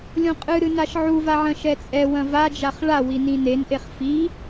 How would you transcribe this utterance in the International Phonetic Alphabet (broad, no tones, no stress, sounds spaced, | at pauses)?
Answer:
lʲ õ qʼ ɨ ɾ ɨ n a ʃ ʕ u v a ʕ ɐ̃ ʃ ɛ t͡sʼ ɛ w ɐ̃ v a d͡ʒ a χ ɭ a w i n ĩ n e n ʔ e χ f i